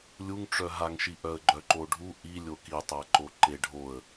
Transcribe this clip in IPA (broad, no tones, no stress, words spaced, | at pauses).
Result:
lʲuŋʈ͡ʂœɦaŋʃi ʔœə̯ɡ͡ǃœǃoɖʱu ʔi lʲokitˤaǃo ǃeɖʱoə̯